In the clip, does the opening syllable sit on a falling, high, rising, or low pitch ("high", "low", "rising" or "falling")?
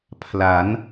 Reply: rising